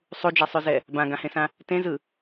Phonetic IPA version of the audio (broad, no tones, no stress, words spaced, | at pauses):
sˤud͡ʒɛsˤʉzɛ | bãɡãhẽsã | tẽzɯ